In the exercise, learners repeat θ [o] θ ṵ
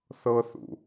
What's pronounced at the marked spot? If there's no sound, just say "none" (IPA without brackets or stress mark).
ɤ